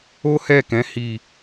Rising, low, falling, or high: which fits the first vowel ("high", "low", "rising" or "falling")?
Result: high